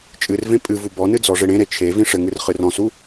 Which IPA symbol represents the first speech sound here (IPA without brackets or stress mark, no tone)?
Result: t͡ʃʼ